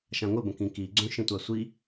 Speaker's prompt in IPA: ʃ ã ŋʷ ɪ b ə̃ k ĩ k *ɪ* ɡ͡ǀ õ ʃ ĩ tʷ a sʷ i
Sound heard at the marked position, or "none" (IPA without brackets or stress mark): i